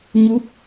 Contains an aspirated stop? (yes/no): no